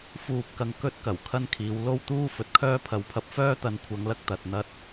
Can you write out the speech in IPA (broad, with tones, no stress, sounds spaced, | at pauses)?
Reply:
f uː˧ p̚ k ɐ˧ ŋ k ɵ˥ t̚ k ɐ˨˩ w kʰ ɐ˥ n kʰ iː˨˧ w l o˥ w t̪ uː˥ f ɵ˨ t̚ kʰ œː˥ pʰ ɐ˨˥ w pʰ ɐ˧ p̚ f œː˥ t̪ ɐ˨˧ n kʷʰ ɐ˨˧ ŋ l ɐ˨ k̚ t̪ ɐ˨ t̚ n̪ ɐ˧ t̚